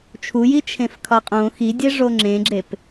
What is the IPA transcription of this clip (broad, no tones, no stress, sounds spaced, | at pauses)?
t͡ʃʰ u j i t͡ʃʰ ẽ f kʰ ɒ qʼ õ x i dʲ e ʐ o ŋ͡ǁ ẽ ɡ͡ǁ e p